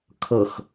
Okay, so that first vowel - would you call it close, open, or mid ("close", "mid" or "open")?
mid